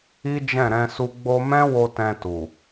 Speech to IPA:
i˦ d͡ʒ ɛ̃˦˨ ɾ ɛ̃˧ s u˧ ɡ͡b o˧ m ɛ̃˦ w o˧ t ɛ̃˧ t u˨

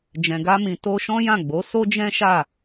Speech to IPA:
d͡ʒ ɛ̃˨ ɡ a˧ m ĩ˨ t o˧ ʃ ɔ̃˦ j ã˦˨ ɡ͡b o˨˦ s o˦ d͡ʒ ɛ̃˦ ʃ a˦˨

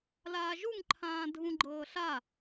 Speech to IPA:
l aː ʒ u ŋ ǃʰ ãː dʱ ũ ɡ͡ǃ ɤː ɬ a

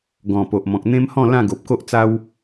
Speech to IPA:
ɡ ɔ̃˨˩ p o˨ ʔ m ɔ̃˨ k̚ n̪ ẽ˦ m h ɔ̃˥˧ l ã˥˧ ɡ o˨ p̚ k o˦ ʔ t͡s a˦ w

